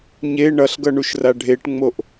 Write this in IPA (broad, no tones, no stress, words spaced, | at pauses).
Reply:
ɲe ɳʌɬɡʌɳuʃra ɖʱeʈŋ͡moʔ